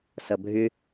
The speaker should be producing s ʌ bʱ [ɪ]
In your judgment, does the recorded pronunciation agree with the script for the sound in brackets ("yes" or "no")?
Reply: no